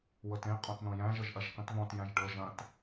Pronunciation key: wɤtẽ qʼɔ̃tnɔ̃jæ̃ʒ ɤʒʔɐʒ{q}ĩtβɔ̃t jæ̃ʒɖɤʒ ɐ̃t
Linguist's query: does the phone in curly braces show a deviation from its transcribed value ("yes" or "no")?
no